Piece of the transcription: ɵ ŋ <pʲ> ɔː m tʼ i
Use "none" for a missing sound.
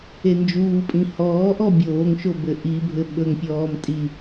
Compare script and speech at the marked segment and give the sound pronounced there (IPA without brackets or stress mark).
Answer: pʲ